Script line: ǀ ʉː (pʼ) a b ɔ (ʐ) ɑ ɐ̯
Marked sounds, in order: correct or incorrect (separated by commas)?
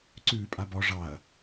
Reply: correct, correct